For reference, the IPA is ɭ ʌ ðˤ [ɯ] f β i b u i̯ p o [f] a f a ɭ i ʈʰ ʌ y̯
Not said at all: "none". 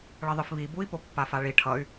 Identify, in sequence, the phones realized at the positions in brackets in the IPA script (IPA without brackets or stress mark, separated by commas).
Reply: ɯ, pː